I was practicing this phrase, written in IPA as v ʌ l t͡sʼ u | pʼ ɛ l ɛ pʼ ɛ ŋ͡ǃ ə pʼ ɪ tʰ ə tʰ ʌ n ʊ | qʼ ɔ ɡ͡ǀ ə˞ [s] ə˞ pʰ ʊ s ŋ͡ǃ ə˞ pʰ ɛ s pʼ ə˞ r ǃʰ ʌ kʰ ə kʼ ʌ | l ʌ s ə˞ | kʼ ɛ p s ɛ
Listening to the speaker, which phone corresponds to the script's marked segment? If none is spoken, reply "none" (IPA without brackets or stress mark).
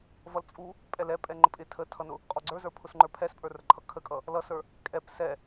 z